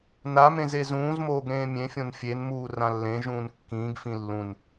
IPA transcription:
namẽz ezũːzmoːɡ ɾẽːmʲẽfʲõn fʲenmuː rãlːẽʒũːn kːĩːɡfĩ lːũn

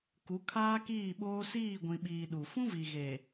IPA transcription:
ku˨˦kʰaː˦kiː˦˨ɓoː˦ siː˦˨ɡʷĩ˨ɓiː˨ ɗu˨ fũ˦vi˨ ɣe˨

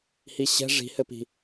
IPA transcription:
hiɕɛ̤ ʐi̤hɘpi̤

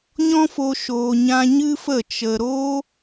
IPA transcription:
ɲɔ̃˦fo˧ ʃoː˧ɲã˦ ɲɨ˦fə˦˨ t͡ʃə˧ ɾoː˦

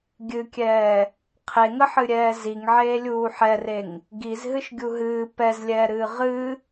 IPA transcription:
ɡʲɨkʲɛː | qʰeŋəħɨɾʲɛː ziŋʕeːlʲuː ħɛreŋ | ɡizɦɨʃɡʲu ɦɨː pɛzlʲɛːɾɨː ʁɨ

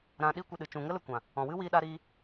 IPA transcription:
ɾã˧ɗi˦kʷə˧ɗɨ˨ t͡ʃũ˨ŋə˧lə˨ kʷã˨ | ɔ̃˨wɨ˦ wiː˧ɗa˧ɾiː˧

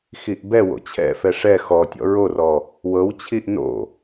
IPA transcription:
xiʔbɛwo̰ t͡ɕʰɛ̰fɛ ʂɛ xɔtʲɔ̰ ɹorɔ | wɤwt͡ɕʰiʔ no̰

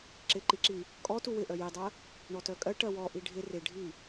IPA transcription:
ǁɪǃiǁi | kʼɔ tuwɪ ʔœjidˤɜ | ɳɔtœkʼɜ ʈɜwɔʔi ɖʱɪ rɪɖʱi

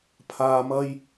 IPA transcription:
pʰaː˨mɐ˧j

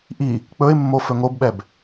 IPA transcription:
ʔi | k͡pɵɪ̯mːo fɵŋobɓɛb

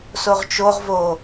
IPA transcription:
soʁt͡ʃoʁvo

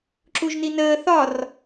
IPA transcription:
ǁuʒninəː θɒr

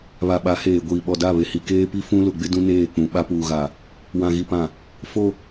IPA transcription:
βa˨ɓa˨˦heː˨ɡʷiː˨ ɓɔ˨da˦˨βe˨hi˨ keː˦pi˦fũ˦ lʊ˨ɡ͡bɪ˦ dũ˦neː˦˨k͡pũ˨ ɓa˦puː˨ɣa˨ | wã˨ɣi˨pã˨ | fo˦

